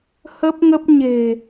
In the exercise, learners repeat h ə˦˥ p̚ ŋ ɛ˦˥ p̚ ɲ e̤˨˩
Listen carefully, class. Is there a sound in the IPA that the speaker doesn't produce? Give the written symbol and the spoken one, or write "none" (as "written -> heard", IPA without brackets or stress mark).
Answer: ɛ˦˥ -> ə˦˥